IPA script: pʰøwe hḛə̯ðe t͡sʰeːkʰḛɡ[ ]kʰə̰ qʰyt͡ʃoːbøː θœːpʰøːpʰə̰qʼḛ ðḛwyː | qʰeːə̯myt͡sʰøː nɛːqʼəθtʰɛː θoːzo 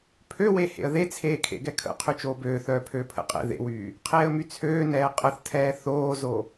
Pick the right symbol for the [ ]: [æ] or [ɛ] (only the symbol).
ɛ